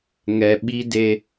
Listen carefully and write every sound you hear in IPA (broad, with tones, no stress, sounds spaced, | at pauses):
ŋ ɛ˨ ɓ i˦ d e˦